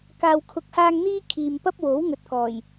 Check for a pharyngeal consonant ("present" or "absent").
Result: absent